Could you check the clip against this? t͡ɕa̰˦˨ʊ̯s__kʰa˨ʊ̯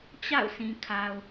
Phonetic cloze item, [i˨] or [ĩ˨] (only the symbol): ĩ˨